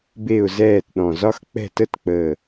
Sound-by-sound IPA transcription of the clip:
b e˥˨ ʊ̯ z ɛː˥˨ t ɗ ɔ̃˧˩ z ɒ˥ x k͡p ɛ̤˥˨ t ə˥ t k͡p əː˧˩

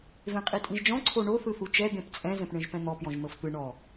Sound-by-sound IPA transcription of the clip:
v ẽ qʼ i tʼ ĩ ʒ d͡ʒ ɔ̃ ǀʰ o ɳ o θ ɯ θ u t͡ʃ ɛ d̪ ẽ p t͡sʼ ɛ̃ z ɛ̃ p ɳ ẽ ʒ p ɛ̃ n̪ ɔ p j ɔ̃ ʒ n̪ ɤ f t̪ ɯ ɳ ɔ

